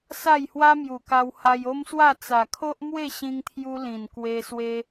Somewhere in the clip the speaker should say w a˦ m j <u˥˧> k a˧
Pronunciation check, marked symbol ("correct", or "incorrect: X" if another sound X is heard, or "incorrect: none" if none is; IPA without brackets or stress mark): incorrect: u˨˩